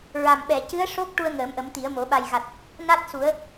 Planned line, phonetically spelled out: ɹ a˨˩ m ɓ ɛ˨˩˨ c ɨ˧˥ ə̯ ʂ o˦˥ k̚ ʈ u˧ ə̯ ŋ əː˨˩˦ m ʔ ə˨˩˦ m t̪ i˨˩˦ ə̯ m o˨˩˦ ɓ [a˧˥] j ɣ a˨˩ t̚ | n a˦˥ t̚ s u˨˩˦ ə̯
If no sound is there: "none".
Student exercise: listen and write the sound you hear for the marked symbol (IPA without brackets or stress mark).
a˨˩